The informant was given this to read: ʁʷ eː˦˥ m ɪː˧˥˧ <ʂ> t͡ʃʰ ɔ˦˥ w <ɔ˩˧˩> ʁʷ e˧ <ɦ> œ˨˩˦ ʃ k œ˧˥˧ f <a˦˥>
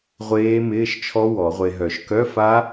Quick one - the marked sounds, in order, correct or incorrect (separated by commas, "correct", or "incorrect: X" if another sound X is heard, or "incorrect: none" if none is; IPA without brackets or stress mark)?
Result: incorrect: ʃ, incorrect: ɔ˨˩˦, correct, correct